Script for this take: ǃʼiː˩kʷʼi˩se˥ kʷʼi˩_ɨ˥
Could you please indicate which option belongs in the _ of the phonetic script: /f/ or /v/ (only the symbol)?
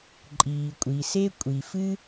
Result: f